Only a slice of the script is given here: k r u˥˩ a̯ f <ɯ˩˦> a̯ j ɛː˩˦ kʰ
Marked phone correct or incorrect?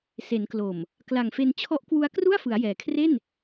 correct